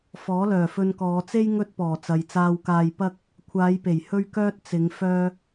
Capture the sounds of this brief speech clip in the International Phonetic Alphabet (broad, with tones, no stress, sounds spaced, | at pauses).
f ɔː˨˥ l œː˨˩ f ɵ˧ n k ɔː˨˧ t͡s e˥ j ŋ ɵ˥ t̚ p ɔː˨˩ t͡s ɐ˨ j t͡s aː˧ w k aː˧ j p ɐ˥ k̚ | kʷʰ aː˨˧ j p e˨˩ j h ɵ˥ ɥ k œː˥ t̚ t͡s ɪ˨˧ ŋ f œː˥